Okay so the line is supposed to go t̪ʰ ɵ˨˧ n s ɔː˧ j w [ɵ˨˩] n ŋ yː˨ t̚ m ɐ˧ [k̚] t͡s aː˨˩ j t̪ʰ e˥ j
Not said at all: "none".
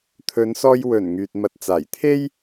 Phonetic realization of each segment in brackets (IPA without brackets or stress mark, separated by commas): ɵ˨˩, t̚